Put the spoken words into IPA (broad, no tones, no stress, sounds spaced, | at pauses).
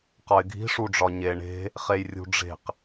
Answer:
q ɒ ɪ̯ ɡʱ i̤ ʂ u ɖ͡ʐ ɒ ɲ e ɳ e̤ | χ e j rʲ ṳ ɖ͡ʐ e̤ q